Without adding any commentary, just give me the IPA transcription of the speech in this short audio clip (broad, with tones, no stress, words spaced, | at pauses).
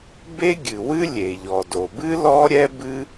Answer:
be˥ɡʲɨ˩wɨ˥ lʲe˩ʎɔ˩ do˩bɨ˥ lɔ˥ɾʲɛ˥bɨ˥